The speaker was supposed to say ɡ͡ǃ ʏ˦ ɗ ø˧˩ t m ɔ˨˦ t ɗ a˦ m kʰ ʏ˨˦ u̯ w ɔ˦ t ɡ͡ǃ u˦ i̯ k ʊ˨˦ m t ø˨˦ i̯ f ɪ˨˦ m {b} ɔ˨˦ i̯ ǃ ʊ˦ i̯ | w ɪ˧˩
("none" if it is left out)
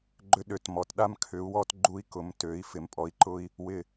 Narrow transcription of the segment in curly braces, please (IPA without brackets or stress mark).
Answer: pʼ